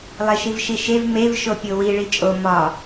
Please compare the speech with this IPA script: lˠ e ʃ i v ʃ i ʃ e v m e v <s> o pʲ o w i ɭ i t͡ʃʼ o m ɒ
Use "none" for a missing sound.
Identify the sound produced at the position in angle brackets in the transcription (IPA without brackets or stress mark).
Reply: ʃ